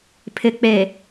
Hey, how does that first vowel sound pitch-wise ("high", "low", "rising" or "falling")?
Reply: low